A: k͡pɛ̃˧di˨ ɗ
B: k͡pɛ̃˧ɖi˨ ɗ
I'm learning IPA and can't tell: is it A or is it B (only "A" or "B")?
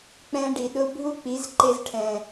B